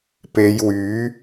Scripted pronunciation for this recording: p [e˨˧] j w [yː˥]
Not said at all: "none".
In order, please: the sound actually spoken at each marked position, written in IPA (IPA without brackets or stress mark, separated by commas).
e˨˧, yː˨˥